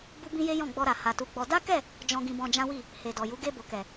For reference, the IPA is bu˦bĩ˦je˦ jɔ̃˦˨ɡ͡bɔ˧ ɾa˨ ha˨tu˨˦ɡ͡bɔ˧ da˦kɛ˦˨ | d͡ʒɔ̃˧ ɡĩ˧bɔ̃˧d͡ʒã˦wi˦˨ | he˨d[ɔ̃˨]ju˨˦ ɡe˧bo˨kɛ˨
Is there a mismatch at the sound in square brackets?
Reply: yes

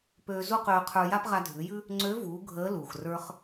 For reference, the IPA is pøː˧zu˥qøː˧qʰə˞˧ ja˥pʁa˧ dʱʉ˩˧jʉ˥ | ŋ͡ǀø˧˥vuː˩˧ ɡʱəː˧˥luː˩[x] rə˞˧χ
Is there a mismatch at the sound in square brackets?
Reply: no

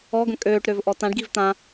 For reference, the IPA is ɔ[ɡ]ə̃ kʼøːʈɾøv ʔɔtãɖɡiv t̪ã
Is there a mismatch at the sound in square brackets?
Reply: no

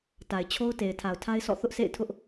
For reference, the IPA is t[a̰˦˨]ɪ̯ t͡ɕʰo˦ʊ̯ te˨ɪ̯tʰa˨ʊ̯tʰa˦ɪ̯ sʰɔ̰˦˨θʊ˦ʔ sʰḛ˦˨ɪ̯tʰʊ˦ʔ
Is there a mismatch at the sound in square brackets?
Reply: yes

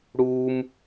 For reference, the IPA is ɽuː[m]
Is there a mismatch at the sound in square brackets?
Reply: no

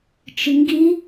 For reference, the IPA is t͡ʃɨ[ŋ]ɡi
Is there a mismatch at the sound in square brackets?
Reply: no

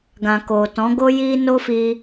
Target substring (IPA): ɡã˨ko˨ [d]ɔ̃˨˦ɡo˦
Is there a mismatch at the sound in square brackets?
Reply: yes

